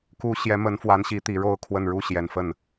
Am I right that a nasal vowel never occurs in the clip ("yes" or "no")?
yes